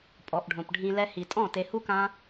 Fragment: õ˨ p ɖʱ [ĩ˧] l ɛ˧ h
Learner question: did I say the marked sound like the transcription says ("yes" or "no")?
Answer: yes